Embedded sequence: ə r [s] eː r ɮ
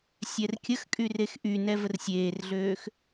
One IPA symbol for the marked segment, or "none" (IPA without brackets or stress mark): sʲ